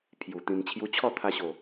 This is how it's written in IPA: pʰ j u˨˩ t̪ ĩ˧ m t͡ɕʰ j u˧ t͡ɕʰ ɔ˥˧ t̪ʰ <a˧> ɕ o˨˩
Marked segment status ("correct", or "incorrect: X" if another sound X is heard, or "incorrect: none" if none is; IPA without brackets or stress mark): correct